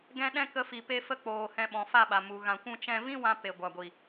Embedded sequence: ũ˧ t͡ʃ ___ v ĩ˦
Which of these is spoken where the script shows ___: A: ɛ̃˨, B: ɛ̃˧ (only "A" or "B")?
B